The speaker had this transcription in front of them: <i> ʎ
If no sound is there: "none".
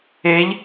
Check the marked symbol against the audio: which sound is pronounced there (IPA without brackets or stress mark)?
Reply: e